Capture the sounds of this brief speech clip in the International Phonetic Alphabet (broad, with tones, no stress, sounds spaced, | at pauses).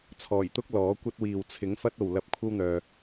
t͡sʰ ɔː˨˩ j t̪ ʊ˥ k̚ l ɔː˨˥ kʷ ɐ˥ t̚ w iː˨ w t͡sʰ ɪ˨˥ ŋ f ɐ˥ t̚ o˨ w l ɐ˧ p̚ kʷʰ ɐ˥ w n̪ œː˨